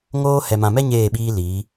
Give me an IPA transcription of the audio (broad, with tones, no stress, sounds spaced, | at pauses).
ŋ oː˦ h ɛ˨ m ã˨ m ɛ˦ ɲ eː˦˨ ɓ iː˦ l iː˨˦